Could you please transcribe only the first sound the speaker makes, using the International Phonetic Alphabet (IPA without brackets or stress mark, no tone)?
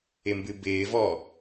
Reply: ɪ